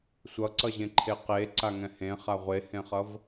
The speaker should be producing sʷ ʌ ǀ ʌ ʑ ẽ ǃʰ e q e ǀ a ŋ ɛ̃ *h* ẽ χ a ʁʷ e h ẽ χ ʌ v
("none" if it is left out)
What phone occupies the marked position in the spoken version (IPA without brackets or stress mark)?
h